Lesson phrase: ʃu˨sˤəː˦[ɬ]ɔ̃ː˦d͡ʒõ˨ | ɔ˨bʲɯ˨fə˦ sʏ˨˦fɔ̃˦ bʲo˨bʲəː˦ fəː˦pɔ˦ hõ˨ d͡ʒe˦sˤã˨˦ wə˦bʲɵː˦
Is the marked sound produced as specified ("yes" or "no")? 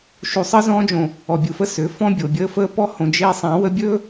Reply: no